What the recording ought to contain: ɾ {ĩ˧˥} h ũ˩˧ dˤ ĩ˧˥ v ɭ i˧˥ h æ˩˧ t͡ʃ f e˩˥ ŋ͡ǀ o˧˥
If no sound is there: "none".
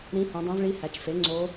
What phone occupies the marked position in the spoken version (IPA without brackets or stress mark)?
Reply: ĩ˧˥